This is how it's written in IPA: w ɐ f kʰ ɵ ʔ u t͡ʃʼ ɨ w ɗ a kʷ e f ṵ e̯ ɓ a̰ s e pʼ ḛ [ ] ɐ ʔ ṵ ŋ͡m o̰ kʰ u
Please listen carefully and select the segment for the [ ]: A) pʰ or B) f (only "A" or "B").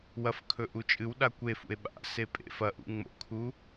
B